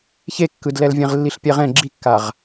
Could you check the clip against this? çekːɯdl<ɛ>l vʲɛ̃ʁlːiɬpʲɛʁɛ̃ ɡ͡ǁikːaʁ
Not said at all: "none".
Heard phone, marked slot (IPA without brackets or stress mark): ɛ